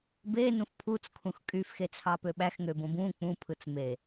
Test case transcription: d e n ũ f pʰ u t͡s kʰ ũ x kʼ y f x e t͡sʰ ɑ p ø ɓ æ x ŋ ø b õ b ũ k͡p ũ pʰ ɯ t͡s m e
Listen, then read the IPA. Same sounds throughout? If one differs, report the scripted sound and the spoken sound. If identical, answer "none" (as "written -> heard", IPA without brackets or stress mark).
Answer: d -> b